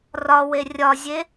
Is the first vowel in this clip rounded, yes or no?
yes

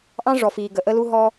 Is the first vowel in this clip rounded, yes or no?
no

